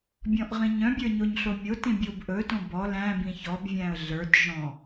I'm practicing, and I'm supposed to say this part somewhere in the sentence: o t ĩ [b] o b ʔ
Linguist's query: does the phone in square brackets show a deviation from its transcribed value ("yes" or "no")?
yes